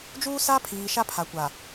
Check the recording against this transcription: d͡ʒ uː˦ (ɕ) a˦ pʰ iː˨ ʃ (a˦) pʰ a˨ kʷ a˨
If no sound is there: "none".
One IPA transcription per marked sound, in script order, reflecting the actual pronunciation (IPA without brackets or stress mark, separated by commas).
s, a˦